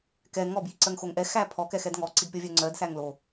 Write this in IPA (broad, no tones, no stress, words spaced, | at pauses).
kɛ ŋɔbjiǀɜŋxoŋ ʔɛxæ pʰɔkɛxɛd ŋɔǀidpʲɔvʲœ ŋ͡ǀɜdsæŋ lo